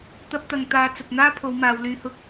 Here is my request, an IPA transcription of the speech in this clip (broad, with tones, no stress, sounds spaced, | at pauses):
t̪ ɐ˥ p̚ t̪ ɐ˧ ŋ t̪ aː˧ t͡s ʊ˨ k̚ n̪ aː˥ pʰ o˨˧ w m aː˨˧ w l yː˧ h ʊ˥ k̚